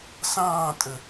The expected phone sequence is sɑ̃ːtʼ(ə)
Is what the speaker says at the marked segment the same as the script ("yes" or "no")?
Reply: yes